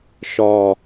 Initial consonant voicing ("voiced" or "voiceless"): voiceless